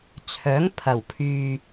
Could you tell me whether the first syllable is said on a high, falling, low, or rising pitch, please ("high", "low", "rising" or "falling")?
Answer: rising